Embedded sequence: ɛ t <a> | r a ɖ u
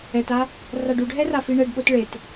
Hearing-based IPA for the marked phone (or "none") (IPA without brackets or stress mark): a